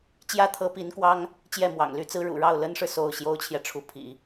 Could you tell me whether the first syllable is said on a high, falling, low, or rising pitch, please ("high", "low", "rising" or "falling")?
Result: high